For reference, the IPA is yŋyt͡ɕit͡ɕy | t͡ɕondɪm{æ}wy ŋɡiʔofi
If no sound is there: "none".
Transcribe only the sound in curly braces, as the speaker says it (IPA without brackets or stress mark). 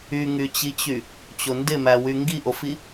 æ